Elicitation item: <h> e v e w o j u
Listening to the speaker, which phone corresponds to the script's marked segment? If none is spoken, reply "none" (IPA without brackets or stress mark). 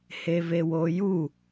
h